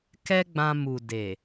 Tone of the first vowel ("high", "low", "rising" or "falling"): high